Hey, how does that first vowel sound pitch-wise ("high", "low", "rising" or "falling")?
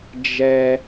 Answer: high